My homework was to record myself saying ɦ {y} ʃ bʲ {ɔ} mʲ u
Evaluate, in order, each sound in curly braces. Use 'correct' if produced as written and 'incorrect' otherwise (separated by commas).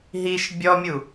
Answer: incorrect, correct